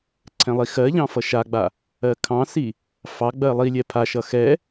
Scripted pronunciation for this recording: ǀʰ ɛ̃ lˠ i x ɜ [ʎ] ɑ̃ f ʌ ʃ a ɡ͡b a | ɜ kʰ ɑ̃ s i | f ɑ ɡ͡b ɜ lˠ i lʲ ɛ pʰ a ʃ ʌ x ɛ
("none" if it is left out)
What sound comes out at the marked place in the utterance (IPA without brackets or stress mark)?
ʎ